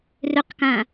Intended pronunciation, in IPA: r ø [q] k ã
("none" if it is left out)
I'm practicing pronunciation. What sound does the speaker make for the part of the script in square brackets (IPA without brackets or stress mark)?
q